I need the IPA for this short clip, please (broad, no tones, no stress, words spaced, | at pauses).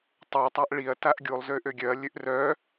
tˤøtˤaʔ ɭiɐ̯ taʔɡʲulˠzø ʔøɡʲœɐ̯lʲøʔ rœ